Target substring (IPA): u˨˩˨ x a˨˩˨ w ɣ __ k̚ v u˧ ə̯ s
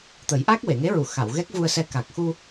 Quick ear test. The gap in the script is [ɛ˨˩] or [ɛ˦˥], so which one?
ɛ˦˥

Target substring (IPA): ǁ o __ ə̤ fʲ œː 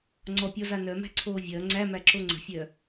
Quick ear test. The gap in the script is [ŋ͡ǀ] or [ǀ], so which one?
ŋ͡ǀ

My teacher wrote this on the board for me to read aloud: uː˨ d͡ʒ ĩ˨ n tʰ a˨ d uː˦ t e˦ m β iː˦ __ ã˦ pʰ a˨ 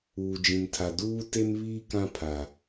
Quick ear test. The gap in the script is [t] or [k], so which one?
k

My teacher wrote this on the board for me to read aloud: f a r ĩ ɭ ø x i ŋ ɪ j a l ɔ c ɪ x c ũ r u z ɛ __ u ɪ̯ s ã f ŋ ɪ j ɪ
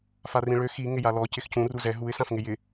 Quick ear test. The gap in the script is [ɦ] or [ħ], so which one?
ɦ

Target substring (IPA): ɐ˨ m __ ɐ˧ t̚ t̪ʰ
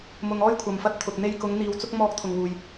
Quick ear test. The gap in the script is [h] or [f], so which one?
f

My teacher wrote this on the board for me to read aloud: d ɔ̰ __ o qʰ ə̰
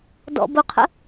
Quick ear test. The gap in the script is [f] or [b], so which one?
b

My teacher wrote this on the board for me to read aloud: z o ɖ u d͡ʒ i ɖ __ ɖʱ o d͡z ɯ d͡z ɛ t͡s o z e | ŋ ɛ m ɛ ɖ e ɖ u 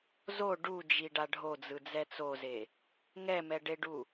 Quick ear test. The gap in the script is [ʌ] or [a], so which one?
a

